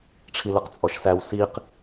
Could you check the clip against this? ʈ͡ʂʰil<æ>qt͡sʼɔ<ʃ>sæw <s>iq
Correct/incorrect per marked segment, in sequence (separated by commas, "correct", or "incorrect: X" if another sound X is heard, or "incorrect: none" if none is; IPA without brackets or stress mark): incorrect: ə, correct, correct